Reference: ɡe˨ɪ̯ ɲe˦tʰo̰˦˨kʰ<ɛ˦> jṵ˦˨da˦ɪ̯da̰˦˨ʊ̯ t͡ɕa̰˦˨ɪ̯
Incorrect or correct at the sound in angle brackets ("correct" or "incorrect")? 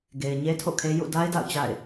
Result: incorrect